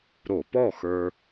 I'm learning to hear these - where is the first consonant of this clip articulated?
tongue tip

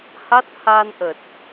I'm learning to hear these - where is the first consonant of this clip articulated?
throat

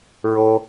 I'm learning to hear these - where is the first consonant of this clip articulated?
tongue tip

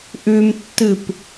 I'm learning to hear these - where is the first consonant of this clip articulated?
throat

